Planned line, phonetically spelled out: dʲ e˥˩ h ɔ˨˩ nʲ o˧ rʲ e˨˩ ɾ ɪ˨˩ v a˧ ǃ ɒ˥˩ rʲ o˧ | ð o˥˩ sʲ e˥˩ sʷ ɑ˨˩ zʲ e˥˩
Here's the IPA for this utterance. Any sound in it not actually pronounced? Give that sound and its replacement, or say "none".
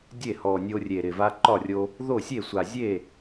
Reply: ɑ˨˩ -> a˨˩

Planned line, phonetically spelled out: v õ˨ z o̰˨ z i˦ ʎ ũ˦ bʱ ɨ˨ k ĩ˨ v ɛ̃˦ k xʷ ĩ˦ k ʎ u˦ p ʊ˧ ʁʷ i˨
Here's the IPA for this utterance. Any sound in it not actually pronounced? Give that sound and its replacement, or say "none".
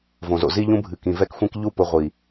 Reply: ɛ̃˦ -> ɛ˦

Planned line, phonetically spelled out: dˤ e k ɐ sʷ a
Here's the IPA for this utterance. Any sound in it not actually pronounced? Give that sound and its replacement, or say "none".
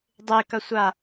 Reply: none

